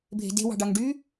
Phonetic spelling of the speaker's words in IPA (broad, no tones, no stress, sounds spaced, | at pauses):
bʱ e̤ d e̤ w ɑ̤ ɖ ɑ ŋ ɖ y